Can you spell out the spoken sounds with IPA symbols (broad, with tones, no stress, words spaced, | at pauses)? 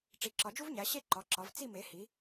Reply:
ʈ͡ʂi˩˧ǁɒ˩˧d͡ʒu˦vɲæ˩˧ ɕe˥˨ǃɒ˩˧ ǁɒ˩˧v t͡si˥˨me˩˧ hi˩˧